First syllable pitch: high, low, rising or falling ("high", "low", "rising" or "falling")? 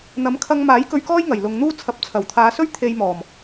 rising